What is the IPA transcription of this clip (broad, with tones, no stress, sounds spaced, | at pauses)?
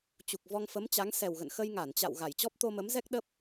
t͡ɕ u˨˩ k̚ v ɔ˧ ŋ f ə˨˦ m t͡ɕ a˨˦ ŋ s ɛ˨˩ w ɣ ə̰˧˨ n x ə˧ j ŋ a˧˩ n t͡ɕ a̰˧˨ w ɣ a˧˩ j t͡ɕ ɔ˦˥ p̚ t̪ o˧ m ə˨˦ m z ɛ˦˥ k̚ ɗ ə˦˥ p̚